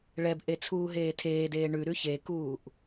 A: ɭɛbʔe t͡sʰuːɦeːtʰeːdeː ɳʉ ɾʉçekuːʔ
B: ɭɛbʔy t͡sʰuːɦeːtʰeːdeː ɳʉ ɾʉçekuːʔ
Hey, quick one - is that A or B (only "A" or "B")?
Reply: A